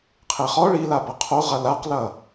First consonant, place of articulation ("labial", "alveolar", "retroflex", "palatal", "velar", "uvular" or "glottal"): uvular